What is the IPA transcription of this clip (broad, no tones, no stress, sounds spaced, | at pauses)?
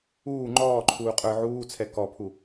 uː ŋ͡ǃ ɔː ǃʰ uː qʼ ə˞ ʕ uː t͡sʰ ɛ k ɔ pʰ u